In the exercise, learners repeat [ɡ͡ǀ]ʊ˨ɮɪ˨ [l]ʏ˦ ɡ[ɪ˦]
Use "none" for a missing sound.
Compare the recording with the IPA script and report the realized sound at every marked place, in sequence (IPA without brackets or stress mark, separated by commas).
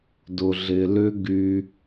d, l, y˦